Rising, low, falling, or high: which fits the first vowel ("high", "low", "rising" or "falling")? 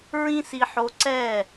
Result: high